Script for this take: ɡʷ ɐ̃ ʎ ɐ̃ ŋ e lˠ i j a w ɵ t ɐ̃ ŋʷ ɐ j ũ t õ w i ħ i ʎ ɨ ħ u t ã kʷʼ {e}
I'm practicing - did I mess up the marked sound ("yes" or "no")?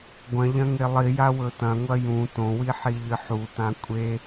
no